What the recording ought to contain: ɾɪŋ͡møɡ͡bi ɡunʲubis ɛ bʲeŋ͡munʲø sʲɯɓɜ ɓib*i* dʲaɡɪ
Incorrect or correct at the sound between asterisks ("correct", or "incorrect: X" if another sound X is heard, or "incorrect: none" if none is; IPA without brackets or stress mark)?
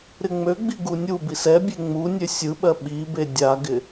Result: incorrect: e